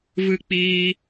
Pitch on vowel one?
high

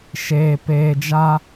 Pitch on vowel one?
low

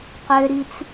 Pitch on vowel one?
high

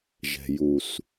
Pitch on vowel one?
low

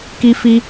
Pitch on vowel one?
high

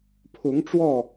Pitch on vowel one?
rising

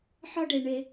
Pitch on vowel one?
high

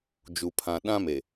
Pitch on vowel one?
low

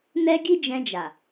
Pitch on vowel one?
high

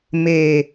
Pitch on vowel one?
low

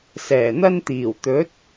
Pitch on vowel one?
low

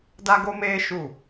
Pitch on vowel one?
high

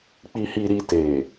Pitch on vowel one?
low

